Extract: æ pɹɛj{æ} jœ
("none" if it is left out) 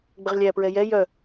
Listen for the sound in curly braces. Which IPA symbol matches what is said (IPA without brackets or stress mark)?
ɛ